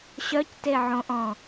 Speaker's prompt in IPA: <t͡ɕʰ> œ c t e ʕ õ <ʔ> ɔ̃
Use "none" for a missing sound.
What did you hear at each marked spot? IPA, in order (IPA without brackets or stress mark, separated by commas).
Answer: ɕ, ʔ